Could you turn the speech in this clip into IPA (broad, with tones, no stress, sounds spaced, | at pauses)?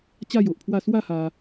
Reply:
t͡ɕ a˥˧ j o˨ ʔ pʰ w a˥˧ s w a˥˧ h a˧